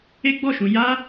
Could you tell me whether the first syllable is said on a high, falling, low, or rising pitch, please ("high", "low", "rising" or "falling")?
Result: high